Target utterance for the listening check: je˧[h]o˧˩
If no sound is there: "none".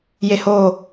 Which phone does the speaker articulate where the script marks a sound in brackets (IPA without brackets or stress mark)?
h